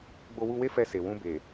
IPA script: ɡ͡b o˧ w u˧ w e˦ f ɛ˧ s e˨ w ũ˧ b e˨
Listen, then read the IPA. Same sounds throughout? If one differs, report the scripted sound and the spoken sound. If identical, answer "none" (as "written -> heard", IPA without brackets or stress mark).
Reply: none